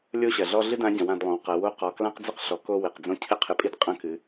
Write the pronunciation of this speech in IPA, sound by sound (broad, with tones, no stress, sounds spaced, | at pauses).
lʲ o˥ ɕ ɐ˩ ɮ ɔ˥ ɮ ɨ˥ d ã˧˥ ɟ ɐ̃˩˧ w ã˩˧ d lˠ õ˩˧ w q ɐ˩˧ w o˧˥ q ɔ˩ k l ã˥ q d͡z ɘ˥ q ɬ ɔ˩˧ k o˧ w e˩ q d͡z õ˧˥ cʰ ɘ˥ qʰ ɘ˧ pʼ i˥ d qʼ ɐ̃˧˥ k ɨ˩˧